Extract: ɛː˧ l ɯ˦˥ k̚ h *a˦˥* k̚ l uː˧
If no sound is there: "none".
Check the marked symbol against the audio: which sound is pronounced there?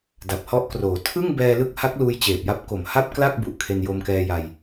a˦˥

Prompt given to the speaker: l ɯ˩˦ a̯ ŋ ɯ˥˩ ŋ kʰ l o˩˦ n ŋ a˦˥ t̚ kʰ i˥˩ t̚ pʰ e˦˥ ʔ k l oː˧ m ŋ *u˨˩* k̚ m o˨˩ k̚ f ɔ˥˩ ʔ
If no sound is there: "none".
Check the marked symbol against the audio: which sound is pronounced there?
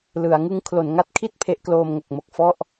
o˨˩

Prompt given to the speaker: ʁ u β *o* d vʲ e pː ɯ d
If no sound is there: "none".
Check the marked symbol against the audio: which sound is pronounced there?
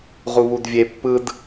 u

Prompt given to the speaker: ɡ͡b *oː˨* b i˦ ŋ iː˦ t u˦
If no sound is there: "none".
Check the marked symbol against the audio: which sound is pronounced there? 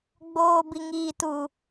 oː˦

